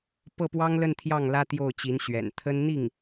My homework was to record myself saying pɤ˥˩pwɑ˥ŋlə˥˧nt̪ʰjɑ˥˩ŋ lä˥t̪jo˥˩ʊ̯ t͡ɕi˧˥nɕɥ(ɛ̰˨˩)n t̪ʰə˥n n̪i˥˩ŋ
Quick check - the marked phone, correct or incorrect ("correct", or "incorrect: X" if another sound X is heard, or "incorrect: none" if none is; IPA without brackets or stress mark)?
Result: correct